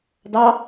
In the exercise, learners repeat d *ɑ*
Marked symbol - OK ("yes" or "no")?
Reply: yes